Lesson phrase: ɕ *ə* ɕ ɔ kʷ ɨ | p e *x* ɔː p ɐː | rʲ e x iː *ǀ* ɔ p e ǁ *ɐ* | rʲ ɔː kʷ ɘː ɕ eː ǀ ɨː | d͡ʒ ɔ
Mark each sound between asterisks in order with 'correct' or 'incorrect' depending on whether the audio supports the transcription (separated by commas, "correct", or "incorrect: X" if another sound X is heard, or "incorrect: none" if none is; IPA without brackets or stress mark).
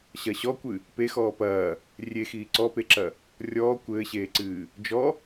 incorrect: ɐ, correct, correct, correct